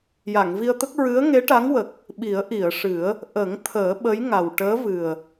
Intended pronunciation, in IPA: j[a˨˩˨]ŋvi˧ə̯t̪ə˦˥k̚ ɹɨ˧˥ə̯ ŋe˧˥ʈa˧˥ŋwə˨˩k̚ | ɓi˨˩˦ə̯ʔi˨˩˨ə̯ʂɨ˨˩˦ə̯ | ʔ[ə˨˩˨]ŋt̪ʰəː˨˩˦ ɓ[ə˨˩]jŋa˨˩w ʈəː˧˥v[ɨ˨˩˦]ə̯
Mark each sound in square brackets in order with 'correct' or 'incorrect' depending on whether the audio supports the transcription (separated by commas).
correct, incorrect, incorrect, incorrect